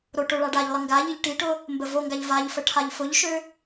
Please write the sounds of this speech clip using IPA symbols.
ɾ o ʈ ʊ ɭ a ɖ a ʎ lˠ ə ŋ ɡ a ʎ i ʎ ʈ i ʈ ʊ | m b ə v o ŋ ɡ a ʎ v a ʎ f ə ʈʰ a ʎ f ʊ ʎ ʃ ø

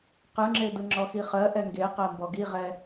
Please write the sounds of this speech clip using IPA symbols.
q ɯ ŋ͡ǁ e d ɯ ŋ͡ǁ ɔ x i χ ɜ ʔ ɛ ŋ ɡ e q ɜ m b ɔ ɡ i ʁ ɛ

